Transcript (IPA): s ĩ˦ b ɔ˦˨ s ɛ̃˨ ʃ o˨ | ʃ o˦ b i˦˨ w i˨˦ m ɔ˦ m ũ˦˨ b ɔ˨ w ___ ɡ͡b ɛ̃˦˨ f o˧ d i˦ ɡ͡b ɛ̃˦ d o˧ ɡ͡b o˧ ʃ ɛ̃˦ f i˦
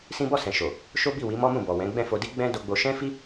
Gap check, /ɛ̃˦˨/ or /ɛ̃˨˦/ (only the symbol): ɛ̃˨˦